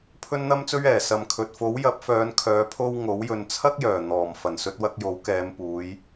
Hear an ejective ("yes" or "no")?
no